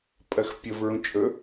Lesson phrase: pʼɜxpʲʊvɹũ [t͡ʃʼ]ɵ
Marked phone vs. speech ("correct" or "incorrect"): correct